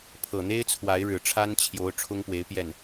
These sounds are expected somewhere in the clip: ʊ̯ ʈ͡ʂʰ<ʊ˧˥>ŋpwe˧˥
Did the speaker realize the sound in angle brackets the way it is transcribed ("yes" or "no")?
no